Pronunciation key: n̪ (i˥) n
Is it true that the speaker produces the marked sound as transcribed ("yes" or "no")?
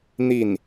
no